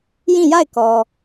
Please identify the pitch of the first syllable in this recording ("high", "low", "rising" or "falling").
falling